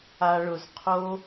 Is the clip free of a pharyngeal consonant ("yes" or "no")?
yes